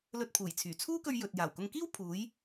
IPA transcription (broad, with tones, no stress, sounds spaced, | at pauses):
l ɵ˧ t̚ pʰ uː˨˩ j t͡sʰ yː˨˩ t͡sʰ uː˥ k ɵ˧ ɥ j ɵ˨ t̚ j aː˨˩ w k ʊ˧ ŋ k iː˥ w pʰ uː˨˥ j